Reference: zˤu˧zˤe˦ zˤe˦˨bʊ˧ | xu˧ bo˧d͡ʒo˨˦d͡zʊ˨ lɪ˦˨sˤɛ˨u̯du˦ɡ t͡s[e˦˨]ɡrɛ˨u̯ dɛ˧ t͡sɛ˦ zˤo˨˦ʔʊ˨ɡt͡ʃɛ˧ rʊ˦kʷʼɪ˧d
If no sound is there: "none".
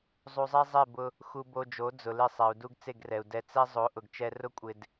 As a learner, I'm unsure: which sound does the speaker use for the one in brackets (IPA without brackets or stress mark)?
e˦˨